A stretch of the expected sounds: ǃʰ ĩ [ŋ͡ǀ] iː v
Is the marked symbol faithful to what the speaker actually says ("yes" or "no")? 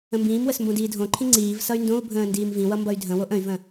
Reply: yes